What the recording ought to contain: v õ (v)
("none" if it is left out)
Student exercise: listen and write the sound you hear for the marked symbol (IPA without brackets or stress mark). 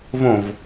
v